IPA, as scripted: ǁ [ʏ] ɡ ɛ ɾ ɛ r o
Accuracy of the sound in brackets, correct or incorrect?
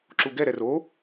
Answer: incorrect